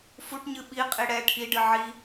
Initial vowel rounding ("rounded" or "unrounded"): rounded